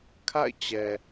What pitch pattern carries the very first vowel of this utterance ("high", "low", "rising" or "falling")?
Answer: falling